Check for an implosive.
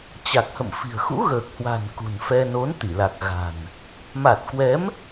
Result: absent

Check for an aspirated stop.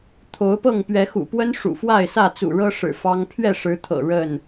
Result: present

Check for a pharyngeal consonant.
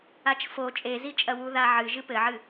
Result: present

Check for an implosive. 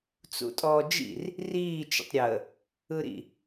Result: absent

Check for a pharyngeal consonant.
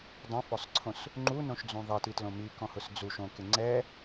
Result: absent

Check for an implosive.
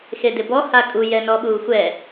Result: present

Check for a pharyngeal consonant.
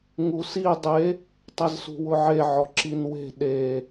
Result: present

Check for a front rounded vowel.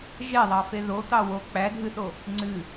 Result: absent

